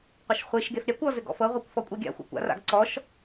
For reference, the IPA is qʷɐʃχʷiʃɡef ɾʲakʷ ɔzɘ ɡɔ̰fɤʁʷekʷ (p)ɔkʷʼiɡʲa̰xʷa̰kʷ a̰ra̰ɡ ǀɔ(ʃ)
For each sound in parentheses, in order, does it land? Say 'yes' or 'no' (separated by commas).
no, yes